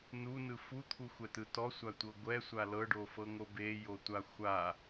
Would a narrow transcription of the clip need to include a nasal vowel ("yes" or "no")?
no